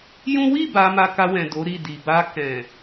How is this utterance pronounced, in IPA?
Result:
jũ˦ wi˦˨ ba˧ma˧ka˧wɛ̃˨ do˨˦ɾi˦˨di˨ ba˧kɛ̃˨

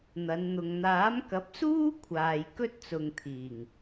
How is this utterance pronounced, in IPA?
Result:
n̪ɐ˨˧nn̪ʊ˨ŋ n̪aː˨˥mkɐ˨˥p̚suː˥ kʷʰaː˨jkɵ˥t̚t͡sʊ˨ŋt̪ʰiː˨˩ŋ

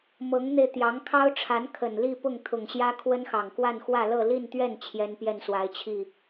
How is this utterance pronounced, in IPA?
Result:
mɤ˧˥ŋn̪e˧ɪ̯ t̪jɑ˧˥ŋkʰɑ˥ʊ̯ʈ͡ʂʰa˧˥n kʰə˨˩nli˥˧ pʊ˥˩ŋt̪ʰʊ˨˩ŋɕjä˥ kʰwə˥nxɑ˨˩ŋkwa˥˧nxwä˥˧ lɤ˥˧li˥˧nt̪ɥɛ˥˩n t͡ɕʰjɛ˥npjɛ˥˩nswa˧˥ɪ̯t͡ɕʰi˥˩

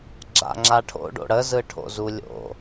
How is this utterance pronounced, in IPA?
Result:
ɡ͡ǁa̰ŋ͡ǁaʈʰo̰ ɖo̰ɽə zɯʈʰo̰zulʲo̰

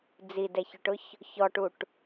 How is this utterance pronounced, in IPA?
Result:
d͡zidɛçʊʈʊç | çɔʈuʈ

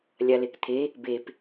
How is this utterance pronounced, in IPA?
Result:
lʲalekt̪ʰe | bep

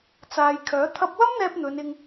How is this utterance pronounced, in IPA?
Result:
t͡saː˨jkʰœː˨˥ t̪ʰɐ˧p̚wɐ˥mn̪ɛː˧p̚ n̪ɵ˨˧nɪ˧ŋ

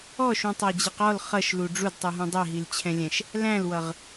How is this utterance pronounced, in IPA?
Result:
ɔʃũtˤæd͡ʑiq ɔl χʌʃlu ɖ͡ʐudtˤuɦũ dˤɛɦilt͡ɕʰɛ̃lʲɛ̃ʃ | læ̃lwʌʁ

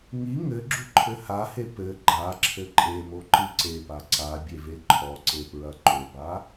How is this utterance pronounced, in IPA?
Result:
ŋi ŋɘ ɡ͡ǁuǃʰɘhahe pɘ ɡ͡ǃa ǁʰɘǃʼemo ǃɨǀepa ǀa bʲeveǃʰɔǀe pɹɐǃoba

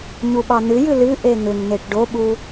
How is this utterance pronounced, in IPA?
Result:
ɲuɓɑn̪ɨjɨ lɨ ʔeŋʏŋn̪eʈ ɖoɓu

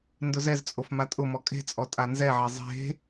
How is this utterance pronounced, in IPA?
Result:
ndʊzɛzt͡sʼof matʼʊmɔ kʼe̤t͡sʼɔ tʼanzɛʕe zˤe̤

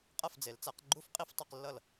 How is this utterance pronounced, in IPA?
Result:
qʼʌ˥˩fd͡ze˩˥lt͡sa˩˥qɡ͡ǃu˥˧f qʼi˥˩ftˤi˥˩q lːʌ˥˩l

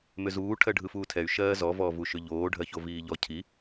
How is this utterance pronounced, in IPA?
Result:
mʏzuː ʈʰɜɖʱɯfuːtʰɛy̯ ʃɜːzɔ vɔːvuʃʏʎoː ɖʱɜçoviːʎɔ cʰi

